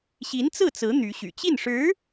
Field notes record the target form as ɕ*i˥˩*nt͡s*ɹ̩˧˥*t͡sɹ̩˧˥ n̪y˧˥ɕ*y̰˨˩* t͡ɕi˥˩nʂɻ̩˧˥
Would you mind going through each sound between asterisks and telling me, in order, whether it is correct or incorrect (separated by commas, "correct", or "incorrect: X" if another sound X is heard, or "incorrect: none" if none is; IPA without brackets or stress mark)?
incorrect: i˧˥, incorrect: ɹ̩˥˩, correct